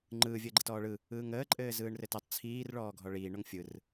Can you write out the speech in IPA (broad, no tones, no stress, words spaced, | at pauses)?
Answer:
ŋ͡ǃɯː vʲəːɡ͡ǃɘtɔːɭɯ | ɯːŋəː ǃʼɘːzɯːɳrɘtətˤ t͡sʰiːr ɭɔːɡʱɔɭiː ɳoŋfʲɯr